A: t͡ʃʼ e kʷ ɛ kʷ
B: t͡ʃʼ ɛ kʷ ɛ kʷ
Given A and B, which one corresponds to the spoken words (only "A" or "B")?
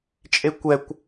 A